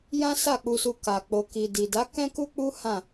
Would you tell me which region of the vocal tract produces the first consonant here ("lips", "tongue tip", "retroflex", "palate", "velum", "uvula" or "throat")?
palate